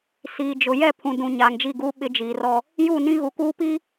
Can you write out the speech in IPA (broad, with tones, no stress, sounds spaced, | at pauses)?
s iː˨ d͡ʒ ʊ˨ j ɛ˦˨ pʰ ũ˨ d ũ˨ ɲ aː˨ ŋ d͡ʒ i˦˨ ɡ uː˦ ɓ ɪ˦ d͡ʒ iː˨ r ɔ˦ | j u˦˨ n ĩ˦ ɣ u˨ k uː˦ p i˦